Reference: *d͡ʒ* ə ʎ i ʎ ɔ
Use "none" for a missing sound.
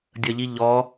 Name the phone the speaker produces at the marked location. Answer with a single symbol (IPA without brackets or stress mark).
dʲ